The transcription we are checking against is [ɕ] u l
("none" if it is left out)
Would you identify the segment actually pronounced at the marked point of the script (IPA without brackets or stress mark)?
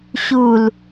ɕ